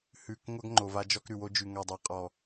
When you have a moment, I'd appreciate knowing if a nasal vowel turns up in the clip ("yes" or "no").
no